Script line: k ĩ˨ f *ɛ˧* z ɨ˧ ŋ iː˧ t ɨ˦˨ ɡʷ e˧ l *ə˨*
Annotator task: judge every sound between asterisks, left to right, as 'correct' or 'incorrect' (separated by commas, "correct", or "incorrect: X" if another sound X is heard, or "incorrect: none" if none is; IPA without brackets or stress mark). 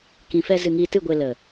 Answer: correct, correct